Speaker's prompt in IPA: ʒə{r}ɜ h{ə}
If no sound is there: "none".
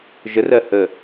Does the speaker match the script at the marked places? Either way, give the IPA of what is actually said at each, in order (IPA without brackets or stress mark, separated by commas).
r, ə